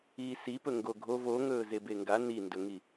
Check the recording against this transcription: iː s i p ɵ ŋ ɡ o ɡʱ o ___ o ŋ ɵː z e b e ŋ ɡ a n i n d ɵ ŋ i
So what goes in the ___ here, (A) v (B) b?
A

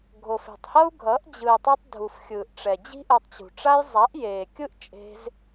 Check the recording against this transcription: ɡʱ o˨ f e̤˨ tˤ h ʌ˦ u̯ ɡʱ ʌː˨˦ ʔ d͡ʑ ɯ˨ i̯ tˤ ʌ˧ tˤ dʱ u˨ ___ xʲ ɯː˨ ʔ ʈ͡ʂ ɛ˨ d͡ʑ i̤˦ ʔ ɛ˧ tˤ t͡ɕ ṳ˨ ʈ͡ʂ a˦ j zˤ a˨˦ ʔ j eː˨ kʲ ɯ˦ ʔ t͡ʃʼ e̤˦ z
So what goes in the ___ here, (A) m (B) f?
B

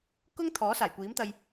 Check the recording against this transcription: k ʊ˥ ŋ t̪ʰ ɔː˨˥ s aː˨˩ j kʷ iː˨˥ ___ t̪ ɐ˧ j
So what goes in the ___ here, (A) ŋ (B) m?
B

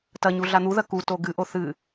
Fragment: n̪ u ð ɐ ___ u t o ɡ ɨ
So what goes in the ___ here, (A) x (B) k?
B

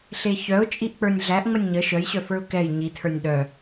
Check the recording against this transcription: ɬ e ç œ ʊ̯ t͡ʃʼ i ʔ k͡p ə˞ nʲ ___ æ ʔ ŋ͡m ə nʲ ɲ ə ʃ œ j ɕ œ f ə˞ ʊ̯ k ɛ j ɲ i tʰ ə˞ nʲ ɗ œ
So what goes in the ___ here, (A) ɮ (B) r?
A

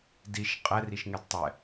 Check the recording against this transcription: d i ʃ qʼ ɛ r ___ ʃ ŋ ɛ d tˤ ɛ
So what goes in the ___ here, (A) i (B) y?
A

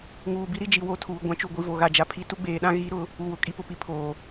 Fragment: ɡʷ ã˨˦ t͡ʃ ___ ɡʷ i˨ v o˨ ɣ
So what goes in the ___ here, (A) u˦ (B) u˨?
B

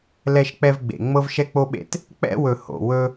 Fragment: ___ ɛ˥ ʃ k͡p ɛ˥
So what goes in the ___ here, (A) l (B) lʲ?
A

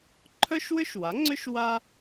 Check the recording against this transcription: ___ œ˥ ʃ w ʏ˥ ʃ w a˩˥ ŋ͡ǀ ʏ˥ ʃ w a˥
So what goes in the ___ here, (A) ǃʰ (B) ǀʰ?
A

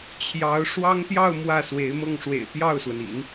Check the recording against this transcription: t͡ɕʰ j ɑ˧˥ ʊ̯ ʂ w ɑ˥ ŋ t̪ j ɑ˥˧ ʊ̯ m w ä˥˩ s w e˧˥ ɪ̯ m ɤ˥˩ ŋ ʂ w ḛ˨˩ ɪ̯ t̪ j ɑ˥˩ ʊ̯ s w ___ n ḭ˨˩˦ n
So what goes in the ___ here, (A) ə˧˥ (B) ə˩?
B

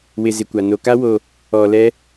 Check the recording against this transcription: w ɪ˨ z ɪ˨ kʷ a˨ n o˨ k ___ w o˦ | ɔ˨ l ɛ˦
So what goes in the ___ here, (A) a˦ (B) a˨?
A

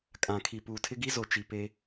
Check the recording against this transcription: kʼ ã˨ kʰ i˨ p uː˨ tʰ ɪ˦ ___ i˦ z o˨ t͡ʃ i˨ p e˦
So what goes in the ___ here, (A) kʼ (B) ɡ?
B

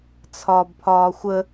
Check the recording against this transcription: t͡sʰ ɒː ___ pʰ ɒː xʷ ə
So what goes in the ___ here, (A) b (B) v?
A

